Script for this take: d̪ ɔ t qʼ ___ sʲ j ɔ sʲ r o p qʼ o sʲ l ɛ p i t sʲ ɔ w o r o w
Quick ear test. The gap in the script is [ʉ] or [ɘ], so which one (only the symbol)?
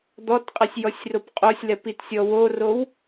ɘ